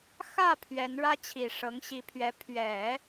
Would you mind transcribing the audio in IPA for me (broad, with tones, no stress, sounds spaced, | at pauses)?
x ä˥˩ pʰ ɥ ɛ˧˥ n ɻ ä˥ t͡ɕʰ i˨˩ ʂ ɤ˧˥ ŋ ɕ i˧˥ pʰ ɥ ɛ˧˥ pʰ ɥ ɛ˨˩˦